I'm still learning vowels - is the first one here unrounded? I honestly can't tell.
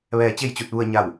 yes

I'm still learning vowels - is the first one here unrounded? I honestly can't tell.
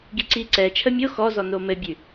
yes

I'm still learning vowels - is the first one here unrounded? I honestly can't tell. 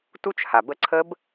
no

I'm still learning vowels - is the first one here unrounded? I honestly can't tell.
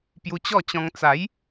no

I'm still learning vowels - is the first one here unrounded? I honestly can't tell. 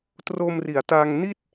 no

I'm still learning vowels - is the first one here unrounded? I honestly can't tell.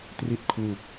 yes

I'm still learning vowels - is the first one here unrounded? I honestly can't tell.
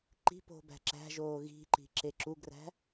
yes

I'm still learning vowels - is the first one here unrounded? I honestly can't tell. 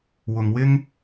no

